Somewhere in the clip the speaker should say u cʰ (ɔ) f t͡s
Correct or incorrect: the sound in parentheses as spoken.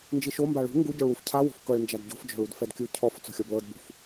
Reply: correct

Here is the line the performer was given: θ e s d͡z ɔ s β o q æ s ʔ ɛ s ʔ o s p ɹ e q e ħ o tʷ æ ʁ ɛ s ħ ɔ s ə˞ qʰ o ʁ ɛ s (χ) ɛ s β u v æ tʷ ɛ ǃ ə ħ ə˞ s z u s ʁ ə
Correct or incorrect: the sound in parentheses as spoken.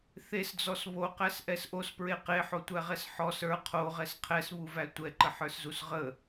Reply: incorrect: qʰ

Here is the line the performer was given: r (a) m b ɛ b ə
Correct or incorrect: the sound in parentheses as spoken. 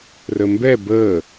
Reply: incorrect: ə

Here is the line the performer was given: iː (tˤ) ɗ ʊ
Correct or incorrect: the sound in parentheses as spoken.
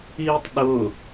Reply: correct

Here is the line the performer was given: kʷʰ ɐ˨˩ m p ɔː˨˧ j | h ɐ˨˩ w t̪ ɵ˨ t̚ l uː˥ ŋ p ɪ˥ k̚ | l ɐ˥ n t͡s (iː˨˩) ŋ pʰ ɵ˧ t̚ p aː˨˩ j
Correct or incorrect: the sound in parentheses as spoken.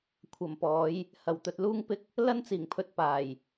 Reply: correct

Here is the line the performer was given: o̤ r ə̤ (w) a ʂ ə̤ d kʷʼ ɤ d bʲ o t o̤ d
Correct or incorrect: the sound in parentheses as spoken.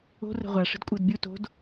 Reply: incorrect: ʁʷ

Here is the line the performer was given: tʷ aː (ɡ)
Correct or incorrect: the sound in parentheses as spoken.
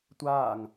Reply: incorrect: ŋ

